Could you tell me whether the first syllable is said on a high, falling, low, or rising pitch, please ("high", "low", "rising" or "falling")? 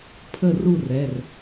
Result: falling